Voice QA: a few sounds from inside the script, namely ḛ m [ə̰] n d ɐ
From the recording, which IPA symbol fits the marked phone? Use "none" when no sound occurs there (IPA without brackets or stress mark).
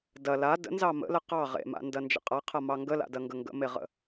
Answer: a̰